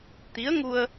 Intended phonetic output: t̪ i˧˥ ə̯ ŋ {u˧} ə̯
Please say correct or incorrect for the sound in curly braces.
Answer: correct